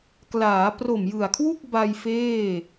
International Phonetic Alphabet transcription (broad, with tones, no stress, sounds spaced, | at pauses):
k l aː˩˦ p r o˨˩ m j ɯ˨˩ a̯ kʰ w u˥˩ k̚ b a˧ j f eː˥˩